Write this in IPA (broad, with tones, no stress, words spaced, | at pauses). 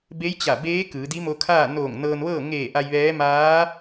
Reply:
be˧˥jt͡ɕa˧˩beː˧˥ kɯː˩˧di˧˥mo˧kʰaː˥˨ noː˧˩ŋ nɤː˧nʋɤː˥˨ ŋeː˧˩ ʔa˧jʋɛː˧˥ maː˧˥